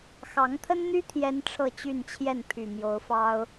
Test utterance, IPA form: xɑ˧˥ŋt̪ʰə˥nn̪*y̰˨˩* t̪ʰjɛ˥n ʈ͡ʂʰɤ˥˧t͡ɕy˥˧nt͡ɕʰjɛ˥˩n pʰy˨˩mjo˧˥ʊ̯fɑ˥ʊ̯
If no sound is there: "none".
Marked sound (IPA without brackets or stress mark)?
y˥